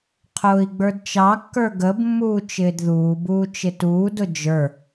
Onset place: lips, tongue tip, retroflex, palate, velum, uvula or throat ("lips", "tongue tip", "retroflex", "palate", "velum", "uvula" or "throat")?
uvula